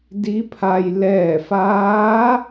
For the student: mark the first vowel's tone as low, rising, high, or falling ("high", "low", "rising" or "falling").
rising